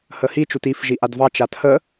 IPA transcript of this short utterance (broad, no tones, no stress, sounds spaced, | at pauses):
h ə h i t͡ʃ u t i f ʒ i ʔ a d v ɑ t͡ʃ a tʰ ə